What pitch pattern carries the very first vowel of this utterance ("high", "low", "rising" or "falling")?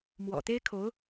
low